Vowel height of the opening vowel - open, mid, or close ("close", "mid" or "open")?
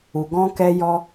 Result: close